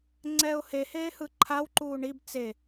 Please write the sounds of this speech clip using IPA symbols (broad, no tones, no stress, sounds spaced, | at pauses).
ŋ͡ǀ ɛː ʊ̯ h e h eː h ɯ ǃʰ a w ǃ uː ɳ i b t͡s e